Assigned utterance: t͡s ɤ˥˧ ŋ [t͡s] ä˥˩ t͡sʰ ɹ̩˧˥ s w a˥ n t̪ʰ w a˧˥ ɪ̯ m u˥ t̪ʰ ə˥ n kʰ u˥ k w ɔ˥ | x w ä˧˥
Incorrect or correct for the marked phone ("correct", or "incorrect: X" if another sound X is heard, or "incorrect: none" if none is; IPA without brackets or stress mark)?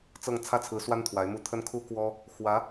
incorrect: t͡sʰ